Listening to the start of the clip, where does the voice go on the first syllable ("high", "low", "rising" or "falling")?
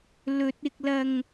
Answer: low